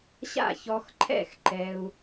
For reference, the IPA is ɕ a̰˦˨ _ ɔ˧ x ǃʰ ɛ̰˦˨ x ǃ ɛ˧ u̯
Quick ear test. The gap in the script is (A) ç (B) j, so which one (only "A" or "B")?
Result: A